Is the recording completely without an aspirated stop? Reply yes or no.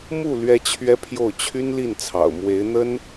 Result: no